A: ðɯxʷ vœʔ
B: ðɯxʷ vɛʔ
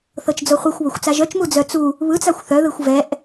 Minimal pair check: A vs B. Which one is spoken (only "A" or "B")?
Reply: B